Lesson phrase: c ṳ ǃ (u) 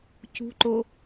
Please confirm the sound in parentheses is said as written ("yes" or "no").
no